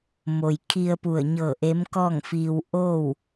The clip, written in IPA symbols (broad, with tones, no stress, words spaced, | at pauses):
mo˩jkʰi˧ə̯ pu˧˩ə̯ɲɤː˧˩ʔe˧˥m kɔː˥˨ŋfiː˧w ʔoː˥˨w